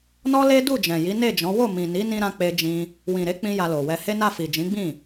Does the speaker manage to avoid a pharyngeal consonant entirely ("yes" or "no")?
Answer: yes